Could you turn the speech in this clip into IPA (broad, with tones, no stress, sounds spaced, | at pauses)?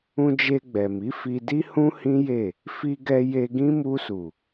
ũ˧ d͡ʒ e˧ ɡ͡b ɛ˨ m i˨˦ f i˧ d i˦ h ũ˦ h ĩ˦ j e˦˨ | f i˧ ɡ ɛ˧ j e˧ ɡ ĩ˦ m u˧ s u˨